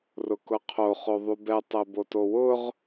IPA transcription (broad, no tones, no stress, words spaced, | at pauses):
rʊkʊqʰo χoðˤubɛ tˤɛbotowʊʁ